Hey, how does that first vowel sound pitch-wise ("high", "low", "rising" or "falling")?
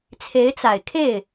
rising